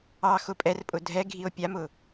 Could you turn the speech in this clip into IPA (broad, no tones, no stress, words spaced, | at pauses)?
ɑ xʊpʼɛrpʼʊ dʱɛ ɡʱio̯pʲamʊ